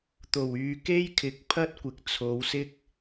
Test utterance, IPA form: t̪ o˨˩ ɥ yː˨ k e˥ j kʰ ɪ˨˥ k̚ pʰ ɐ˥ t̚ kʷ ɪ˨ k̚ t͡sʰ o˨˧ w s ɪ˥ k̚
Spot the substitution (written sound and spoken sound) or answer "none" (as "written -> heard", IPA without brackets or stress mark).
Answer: ɥ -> w